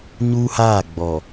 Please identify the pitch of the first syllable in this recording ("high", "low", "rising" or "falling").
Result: high